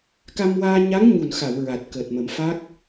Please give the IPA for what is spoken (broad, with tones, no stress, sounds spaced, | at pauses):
k a˧ m w aː˧ ɲ a˧˥ ŋ ɲ u˨˩ n x a˨˩˨ w ɹ a˨˩ t̚ k əː˨˩ t̚ m ə˨˩˦ m f a˦˥ k̚